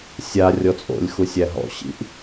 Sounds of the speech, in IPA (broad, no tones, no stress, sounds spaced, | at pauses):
sʲ a rʲ ɔ t͡sʼ o̰ lʲ x u sʲ æ ɦ ɔ̰ ɕ ḭ ʔ